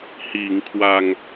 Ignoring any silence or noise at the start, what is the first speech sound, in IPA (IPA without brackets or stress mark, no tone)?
h